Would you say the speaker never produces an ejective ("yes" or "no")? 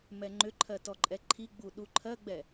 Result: no